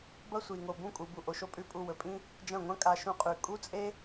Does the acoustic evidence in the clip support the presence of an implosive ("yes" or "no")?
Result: no